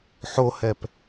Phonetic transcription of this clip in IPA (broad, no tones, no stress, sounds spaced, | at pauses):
ħ o h ɛ p